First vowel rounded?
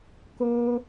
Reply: yes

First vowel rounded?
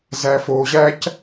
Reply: no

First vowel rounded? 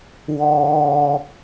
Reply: yes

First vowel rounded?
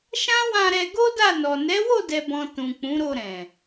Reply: no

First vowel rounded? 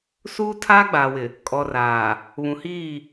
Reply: yes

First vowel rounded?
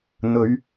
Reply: yes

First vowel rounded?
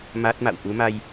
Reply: no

